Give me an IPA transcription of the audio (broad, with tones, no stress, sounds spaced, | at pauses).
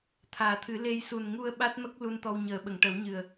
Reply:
t̪ʰ aː˨˩ t̪ʰ ɨ˨˩˦ l e˧ j s u˨˩ n ŋ u˧ ə̯ ɓ a˦˥ t̚ m ə˦˥ k̚ l u˧ n t̪ ɔ˧ w ɲ əː˨˩˦ ɓ ə˨˩˨ ŋ ʈ ə˨˩˦ w ɲ ɨ˨˩ ə̯